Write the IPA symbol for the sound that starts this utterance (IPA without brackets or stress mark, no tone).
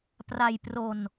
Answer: p